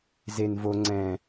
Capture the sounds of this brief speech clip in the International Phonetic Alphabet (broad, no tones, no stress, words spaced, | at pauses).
zen vo ŋ͡ǀɛ̃